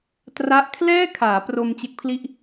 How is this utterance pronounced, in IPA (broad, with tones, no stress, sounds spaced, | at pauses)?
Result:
t r a˦˥ ʔ kʰ l ɛː˥˩ kʰ aː˩˦ p r o˧ m t͡ɕ e˦˥ k̚ pʰ l i˥˩ ʔ